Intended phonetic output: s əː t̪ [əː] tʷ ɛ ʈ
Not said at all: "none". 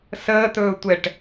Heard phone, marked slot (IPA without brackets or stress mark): ɵː